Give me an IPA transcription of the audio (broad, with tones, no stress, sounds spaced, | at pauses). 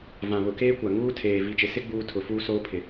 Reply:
v ã˨ β ʊ˨ k eː˦ kʷ a˨ ŋ uː˦ tʰ eː˨ v i˨ t͡ʃ ɪ˨ s ɪ˦ ɡ͡b uː˦ tʰ ʊ˨ f uː˦ s oː˦ pʰ ɪ˨